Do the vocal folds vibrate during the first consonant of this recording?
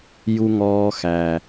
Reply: yes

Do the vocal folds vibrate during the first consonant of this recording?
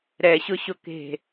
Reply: yes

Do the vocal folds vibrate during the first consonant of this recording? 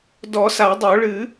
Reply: yes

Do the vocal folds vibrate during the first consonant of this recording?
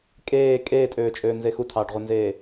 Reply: no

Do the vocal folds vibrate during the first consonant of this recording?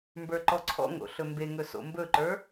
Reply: yes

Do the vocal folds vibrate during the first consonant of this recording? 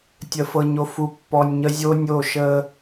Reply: no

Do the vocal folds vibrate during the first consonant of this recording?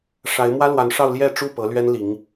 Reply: no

